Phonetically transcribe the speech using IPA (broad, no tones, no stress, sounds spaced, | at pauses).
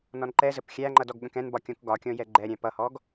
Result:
n ɔ n ǃ ɛ z ə p xʲ æ ŋ͡ǃ ʌ d ɔ ɡ ɠ ə̃ k ɛ̃ n b ɒ kʲ ɔ̃ k ɡ ɒ kʲ ɔ̃ j ɛ ɡ͡ǃ ɛ ɾʲ æ̃ p ʌ h ɔ ɡ